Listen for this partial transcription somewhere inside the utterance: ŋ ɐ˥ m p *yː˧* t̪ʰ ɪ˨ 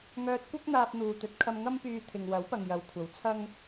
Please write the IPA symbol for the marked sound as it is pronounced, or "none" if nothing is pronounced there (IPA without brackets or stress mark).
yː˧